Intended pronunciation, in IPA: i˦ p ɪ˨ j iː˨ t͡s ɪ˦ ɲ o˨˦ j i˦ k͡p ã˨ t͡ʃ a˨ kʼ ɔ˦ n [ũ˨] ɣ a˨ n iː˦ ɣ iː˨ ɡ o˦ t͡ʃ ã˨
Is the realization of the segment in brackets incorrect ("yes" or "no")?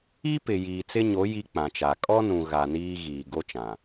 no